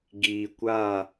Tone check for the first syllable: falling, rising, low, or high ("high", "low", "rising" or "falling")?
low